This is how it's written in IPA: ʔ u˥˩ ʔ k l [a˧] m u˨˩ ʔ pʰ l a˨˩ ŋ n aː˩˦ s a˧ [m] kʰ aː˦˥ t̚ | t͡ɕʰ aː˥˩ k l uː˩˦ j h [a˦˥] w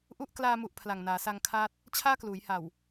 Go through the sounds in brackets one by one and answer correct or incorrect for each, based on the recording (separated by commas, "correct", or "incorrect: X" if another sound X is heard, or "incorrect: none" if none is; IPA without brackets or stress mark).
incorrect: aː˧, incorrect: ŋ, incorrect: a˨˩